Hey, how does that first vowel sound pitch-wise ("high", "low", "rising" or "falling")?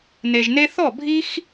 low